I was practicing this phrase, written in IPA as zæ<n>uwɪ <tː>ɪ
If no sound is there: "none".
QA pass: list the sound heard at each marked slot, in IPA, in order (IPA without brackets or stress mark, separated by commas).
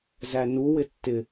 n, tː